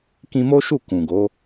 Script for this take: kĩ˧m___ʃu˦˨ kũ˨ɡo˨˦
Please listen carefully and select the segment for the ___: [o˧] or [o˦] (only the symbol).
o˦